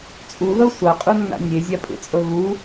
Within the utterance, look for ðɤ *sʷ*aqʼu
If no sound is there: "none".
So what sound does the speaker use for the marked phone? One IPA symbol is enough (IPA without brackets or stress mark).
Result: sʷ